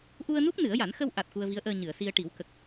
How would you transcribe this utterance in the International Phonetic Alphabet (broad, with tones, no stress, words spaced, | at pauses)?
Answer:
ʔu˧ə̯nu˦˥k̚ nɨ˨˩˦ə̯ja˨˩˦n xə˧wʔa˨˩t̚ ku˧ə̯vi˧˥ə̯ʔəː˧ ɲɨ˨˩˨ə̯si˧ə̯ ʈi˨˩˦wkə˨˩k̚